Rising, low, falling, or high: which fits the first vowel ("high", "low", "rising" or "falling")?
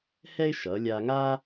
high